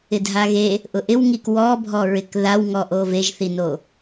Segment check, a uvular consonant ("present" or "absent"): absent